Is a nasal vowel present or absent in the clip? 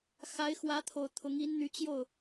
absent